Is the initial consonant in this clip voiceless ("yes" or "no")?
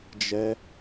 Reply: no